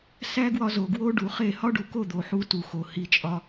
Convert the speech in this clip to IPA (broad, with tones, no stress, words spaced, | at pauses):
sæ˦ɡwɒ˧ zo˨ɡwo˦ɖu˨χe˦˨ hɒ˦ɖu˨ko˦˨ d̪o˨ħu˧ tu˨xo˨ hi˧t͡ʃʼɒ˧